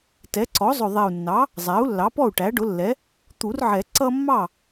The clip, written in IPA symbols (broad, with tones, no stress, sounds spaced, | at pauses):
t ɛ˩˥ ǀ ɔ˩˥ zˤ ʊ˨˩ ðˤ ɛ˨˩ u̯ nː ɑ˩˥ | zˤ æ˩˥ u̯ lː ɑ˩˥ p ɔ˥˩ u̯ ʈ æ˩˥ ɖ ʊ˩˥ lː ɛ˩˥ | t̪ u˨˩˦ r ʕ ɛ˨˩˦ ǀ ʌ˦ mː ɑ˥˩